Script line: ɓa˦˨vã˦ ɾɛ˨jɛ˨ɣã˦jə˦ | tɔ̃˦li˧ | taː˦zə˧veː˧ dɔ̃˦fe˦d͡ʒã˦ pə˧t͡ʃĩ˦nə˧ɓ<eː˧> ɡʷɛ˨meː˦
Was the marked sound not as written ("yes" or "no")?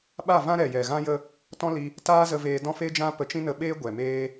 yes